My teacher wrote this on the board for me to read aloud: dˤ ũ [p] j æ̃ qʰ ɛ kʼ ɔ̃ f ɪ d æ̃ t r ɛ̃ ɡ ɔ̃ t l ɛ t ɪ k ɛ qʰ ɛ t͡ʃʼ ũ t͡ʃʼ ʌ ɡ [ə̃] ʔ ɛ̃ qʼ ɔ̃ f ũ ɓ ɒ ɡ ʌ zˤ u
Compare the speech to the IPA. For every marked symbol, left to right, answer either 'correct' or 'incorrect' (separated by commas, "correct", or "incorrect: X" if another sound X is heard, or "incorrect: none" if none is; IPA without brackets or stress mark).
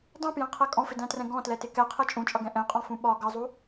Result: correct, incorrect: ɛ̃